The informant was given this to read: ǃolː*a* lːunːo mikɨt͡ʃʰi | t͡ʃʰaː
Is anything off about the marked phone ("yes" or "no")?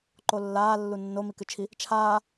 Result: yes